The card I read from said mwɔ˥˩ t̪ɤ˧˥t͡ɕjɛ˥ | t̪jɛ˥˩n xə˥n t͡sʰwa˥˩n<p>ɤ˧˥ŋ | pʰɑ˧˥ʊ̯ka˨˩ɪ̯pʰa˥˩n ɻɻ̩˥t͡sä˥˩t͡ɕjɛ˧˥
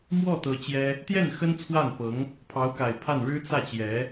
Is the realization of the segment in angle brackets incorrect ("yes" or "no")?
no